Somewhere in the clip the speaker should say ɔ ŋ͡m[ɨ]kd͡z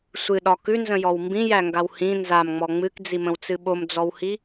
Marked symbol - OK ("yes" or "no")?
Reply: yes